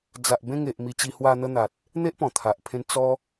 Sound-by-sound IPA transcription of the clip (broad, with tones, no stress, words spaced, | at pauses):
d͡za˨ʔbẽ˧ŋe˨ʔ mi˧t͡ɕi˧hwa˧ n̪ə˧n̪a˨t̚ | n̪e˦ʔpɔ̃˨˩t̪ʰa˨ʔpʰẽ˧n t͡sɔ˧